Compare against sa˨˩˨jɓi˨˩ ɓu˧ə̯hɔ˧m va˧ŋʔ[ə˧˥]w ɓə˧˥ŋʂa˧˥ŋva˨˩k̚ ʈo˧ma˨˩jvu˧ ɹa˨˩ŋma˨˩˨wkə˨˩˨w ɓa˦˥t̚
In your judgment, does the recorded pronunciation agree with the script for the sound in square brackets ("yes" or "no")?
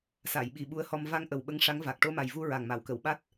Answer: no